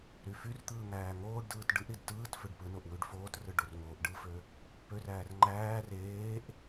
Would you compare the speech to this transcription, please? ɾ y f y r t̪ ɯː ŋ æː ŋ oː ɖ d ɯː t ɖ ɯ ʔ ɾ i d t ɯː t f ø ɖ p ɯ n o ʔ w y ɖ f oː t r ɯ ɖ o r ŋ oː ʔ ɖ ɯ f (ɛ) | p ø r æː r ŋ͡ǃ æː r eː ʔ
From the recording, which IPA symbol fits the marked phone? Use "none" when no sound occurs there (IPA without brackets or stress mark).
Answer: ø